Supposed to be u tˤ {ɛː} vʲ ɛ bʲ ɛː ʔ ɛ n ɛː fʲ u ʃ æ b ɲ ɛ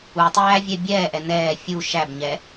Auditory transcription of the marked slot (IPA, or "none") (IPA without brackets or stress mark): æː